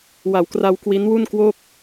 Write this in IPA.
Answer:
w a˩˦ w k r a˧ w k w i˦˥ n w u˥˩ n k w o˥˩ k̚

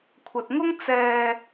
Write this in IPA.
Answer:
kʷʰ ɐ˨ t̚ ŋ ʊ˥ ŋ t͡s ɛː˧

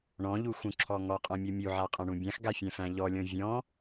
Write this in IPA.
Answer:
ɳ ɔ̃ ʎ u x ũ ǁʰ ɔ ŋ ɔ qʼ ɔ̃ mʲ ɔ mʲ u ʕ a qʼ ã ɳ ũ bʲ ã x ɡ a fʲ æ̃ f æ̃ ʎ ɔ lʲ ɔ̃ vʲ ɔ̃

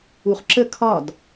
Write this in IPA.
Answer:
u χ ǁ ə kʰ ɒ d

